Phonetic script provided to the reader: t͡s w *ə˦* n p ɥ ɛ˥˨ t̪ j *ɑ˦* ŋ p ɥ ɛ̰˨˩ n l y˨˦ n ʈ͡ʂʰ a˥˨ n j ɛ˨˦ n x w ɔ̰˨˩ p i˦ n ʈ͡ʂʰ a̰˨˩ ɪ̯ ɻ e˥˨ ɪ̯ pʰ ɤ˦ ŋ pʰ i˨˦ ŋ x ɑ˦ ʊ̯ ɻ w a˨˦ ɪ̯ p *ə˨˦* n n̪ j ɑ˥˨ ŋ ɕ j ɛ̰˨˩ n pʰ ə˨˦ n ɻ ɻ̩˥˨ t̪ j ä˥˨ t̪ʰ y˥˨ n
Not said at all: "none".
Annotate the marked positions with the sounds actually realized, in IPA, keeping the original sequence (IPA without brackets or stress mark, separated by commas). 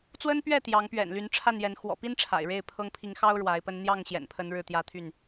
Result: ə˦, ɑ˨˦, ə˦